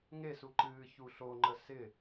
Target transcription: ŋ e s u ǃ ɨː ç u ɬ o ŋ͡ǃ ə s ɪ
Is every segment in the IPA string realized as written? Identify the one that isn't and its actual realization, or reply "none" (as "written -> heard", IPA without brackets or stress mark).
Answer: none